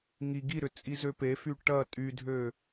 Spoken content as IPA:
ŋ i ɡ i ɾ ʏ t͡sʼ i z ø p e f y ʈ ɐ tʼ y dʱ ø

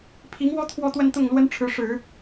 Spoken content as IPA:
pʰ i˧˥ ŋ w ɔ˥ t̪ʰ w ɔ˥˧ t̪ w ə˥˧ n t̪ ʊ˥˩ ŋ l w ə˥ n ʈ͡ʂʰ ɻ̩˧˥ ʂ ɻ̩˨˩˦

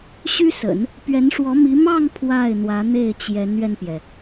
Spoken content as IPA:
ɕ y˥ s ə̰˨˩˦ n | p ɥ ɛ˧˥ n ʂ w ɔ˧˥ m i˧˥ m ɑ˥˧ ŋ pʰ w a˥˩ ɪ̯ n̪ w ä˧˥ n̪ e˥˩ ɪ̯ t͡ɕ j ɛ˧˥ n ɥ ɛ˧ n p j ɛ˩

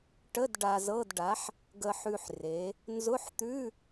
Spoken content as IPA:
ʈ ə˧˥˧ d ɖ a˧ z ɤ˧˥˧ d ɖ a˨˥ ħ | ɡ ə˧ ħ ʉ˧ ħ r e˩˧ | n z ʊ˧˥˧ ħ t̪ ʉ˧˥˧

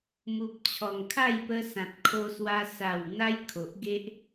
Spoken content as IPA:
m u˨ p̚ t͡ɕʰ ɔ˨˩ ŋ kʰ a˥˧ j p ə˧ s ã˨ t̚ kʰ o˧ s w a˧ s a˨˩ w n̪ a˧ j kʰ o˨ ʔ ɡ e˦ ʔ

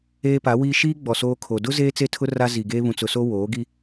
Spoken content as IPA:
eː˦ p a˨˦ w iː˦ ʃ iː˦ ɡ͡b ɔ˨ s oː˦ kʰ o˨ d ʊ˦ z eː˦ t͡s e˦ tʰ ʊ˦ r a˦ z i˨ ɡ eː˦ β ũ˨ t͡s ʊ˨ s o˦ w oː˨˦ ɡ i˦

